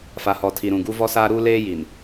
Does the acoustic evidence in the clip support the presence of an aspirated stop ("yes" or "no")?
yes